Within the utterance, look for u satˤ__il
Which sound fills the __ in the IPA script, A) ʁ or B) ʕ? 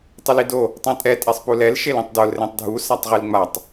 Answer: A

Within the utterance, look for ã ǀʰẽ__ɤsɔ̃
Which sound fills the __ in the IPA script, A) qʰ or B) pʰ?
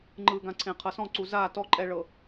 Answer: A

